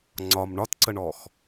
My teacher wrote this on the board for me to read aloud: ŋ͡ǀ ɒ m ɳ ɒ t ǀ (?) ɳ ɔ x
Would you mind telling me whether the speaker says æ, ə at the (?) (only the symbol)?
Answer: ə